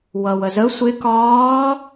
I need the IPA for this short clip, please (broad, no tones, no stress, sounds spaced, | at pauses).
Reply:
w ʌ w ə z ə sʷ ɪ k ɒː